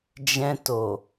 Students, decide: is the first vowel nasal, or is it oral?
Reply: nasal